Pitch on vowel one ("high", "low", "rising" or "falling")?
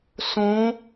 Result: rising